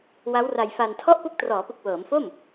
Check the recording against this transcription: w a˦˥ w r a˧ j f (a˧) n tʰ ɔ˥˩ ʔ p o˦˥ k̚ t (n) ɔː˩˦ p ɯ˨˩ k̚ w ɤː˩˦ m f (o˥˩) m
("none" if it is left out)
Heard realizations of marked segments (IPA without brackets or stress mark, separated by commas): a˧, r, o˥˩